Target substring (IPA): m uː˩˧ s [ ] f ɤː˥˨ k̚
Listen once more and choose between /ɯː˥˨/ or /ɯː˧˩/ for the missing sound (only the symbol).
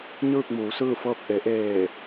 ɯː˥˨